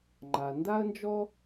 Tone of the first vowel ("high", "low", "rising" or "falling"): low